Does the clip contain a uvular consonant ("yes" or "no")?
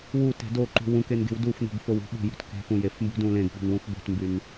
no